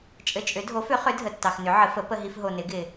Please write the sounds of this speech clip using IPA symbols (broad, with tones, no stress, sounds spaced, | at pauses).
t͡ʃʼ ɘ˨ t͡ʃʼ ʏ˩˥ dʱ o˩˥ f ʏ˩˥ χ ʏ˩˥ dʱ ə˨ tː ɑ˨ x n ʏ˩˥ ʕ ə˩˥ f ə˩˥ p ə˨ ɦ i˨ f ɦ o˨ n ɪ˩˥ ɡ ɪ˨